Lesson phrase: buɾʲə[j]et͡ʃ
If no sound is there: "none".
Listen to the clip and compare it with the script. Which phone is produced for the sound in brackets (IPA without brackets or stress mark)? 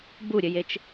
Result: j